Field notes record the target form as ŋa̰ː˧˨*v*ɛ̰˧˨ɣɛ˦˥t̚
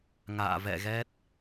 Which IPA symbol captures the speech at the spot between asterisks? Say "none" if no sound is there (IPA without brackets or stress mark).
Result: v